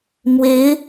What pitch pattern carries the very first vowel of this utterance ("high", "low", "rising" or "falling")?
rising